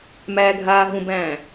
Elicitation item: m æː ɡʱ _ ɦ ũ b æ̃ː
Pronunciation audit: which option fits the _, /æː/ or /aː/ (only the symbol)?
aː